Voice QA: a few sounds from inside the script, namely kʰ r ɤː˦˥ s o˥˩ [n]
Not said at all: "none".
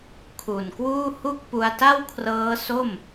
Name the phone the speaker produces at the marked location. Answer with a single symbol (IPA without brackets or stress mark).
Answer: m